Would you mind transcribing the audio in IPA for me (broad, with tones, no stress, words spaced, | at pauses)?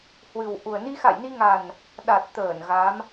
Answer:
hwɨ˨˩wʔu˨˩ə̯ ni˧xa̰˧˨jni˧ŋa˨˩n | ɗa˨˩t̚t̪əː˧˩n ɣa˨˦m